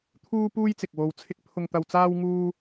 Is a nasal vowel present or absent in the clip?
absent